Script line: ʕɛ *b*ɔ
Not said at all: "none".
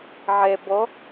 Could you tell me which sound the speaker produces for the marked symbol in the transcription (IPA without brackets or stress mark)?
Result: b